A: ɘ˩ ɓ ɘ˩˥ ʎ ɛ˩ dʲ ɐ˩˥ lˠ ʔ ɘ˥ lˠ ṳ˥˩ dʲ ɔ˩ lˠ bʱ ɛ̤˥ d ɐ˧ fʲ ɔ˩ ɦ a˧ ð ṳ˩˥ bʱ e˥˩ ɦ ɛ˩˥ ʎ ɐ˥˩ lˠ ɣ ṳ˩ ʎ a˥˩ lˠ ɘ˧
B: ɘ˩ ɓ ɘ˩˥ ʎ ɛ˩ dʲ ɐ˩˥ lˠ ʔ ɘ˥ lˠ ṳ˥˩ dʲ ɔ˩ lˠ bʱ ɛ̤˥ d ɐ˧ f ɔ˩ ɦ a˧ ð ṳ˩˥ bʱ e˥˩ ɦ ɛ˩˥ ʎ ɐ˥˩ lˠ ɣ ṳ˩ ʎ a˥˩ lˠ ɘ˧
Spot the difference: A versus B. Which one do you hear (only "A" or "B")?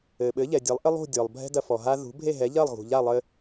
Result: B